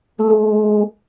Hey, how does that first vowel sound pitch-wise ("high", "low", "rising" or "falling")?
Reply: high